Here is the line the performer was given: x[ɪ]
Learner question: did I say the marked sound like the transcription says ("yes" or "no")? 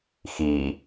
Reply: no